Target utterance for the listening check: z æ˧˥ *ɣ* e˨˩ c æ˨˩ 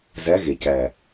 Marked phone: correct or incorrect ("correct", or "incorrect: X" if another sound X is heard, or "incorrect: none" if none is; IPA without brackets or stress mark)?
correct